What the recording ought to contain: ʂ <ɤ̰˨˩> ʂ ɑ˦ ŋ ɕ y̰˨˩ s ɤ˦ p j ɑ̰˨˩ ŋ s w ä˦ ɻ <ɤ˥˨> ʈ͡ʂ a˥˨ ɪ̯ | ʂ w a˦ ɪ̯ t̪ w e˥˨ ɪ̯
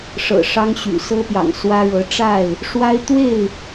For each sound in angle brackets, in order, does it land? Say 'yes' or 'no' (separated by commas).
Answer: yes, no